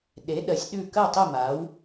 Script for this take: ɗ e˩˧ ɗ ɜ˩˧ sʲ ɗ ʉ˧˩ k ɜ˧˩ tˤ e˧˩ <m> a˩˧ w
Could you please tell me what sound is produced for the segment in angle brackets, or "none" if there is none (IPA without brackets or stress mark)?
m